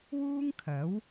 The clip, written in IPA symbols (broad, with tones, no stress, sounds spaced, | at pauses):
w uː˥ ŋ kʰ ɐ˨˥ w